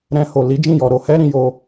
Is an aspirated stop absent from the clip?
yes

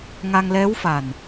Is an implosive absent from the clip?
yes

